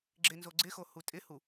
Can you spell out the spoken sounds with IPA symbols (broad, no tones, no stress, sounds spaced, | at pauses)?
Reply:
ɡ͡ǁ ɪ n z o ɡ͡ǀ ɪ x o h u tʼ ɪ h u